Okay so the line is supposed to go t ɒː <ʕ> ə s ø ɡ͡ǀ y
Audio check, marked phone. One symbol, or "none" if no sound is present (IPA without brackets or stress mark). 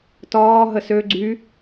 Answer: ɦ